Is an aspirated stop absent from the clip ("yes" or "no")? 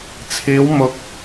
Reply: no